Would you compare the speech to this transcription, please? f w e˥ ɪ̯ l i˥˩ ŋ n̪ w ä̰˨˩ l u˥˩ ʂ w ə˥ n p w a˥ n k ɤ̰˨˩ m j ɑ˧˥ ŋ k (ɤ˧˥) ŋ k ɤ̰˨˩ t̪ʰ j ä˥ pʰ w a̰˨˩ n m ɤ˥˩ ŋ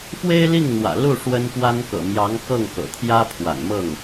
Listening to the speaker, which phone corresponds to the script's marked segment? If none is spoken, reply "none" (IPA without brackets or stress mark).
ɤ˥˩